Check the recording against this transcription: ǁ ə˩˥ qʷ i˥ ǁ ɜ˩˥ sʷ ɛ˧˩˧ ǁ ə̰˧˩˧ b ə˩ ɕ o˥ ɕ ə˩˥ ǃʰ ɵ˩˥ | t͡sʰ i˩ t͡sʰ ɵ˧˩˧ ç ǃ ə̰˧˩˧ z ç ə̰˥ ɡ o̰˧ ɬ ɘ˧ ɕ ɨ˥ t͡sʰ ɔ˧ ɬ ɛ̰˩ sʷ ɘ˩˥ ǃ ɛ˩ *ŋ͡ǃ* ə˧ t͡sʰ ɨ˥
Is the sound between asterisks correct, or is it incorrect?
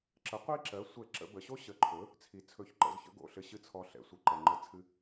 correct